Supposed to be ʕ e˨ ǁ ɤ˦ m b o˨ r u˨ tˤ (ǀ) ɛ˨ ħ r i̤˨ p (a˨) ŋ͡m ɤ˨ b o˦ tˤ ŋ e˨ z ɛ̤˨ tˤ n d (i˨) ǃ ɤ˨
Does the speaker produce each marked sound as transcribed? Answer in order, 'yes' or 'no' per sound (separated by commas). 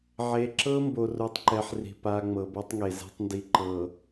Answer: no, yes, yes